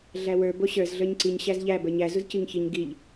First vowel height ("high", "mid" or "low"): low